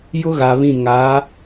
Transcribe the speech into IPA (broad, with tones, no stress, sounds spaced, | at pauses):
j ʊ˦ ɣ a˨ β ĩ˦˨ ŋ a˨˦